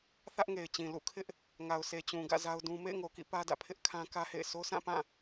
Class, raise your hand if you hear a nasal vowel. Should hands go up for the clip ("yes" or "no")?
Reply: yes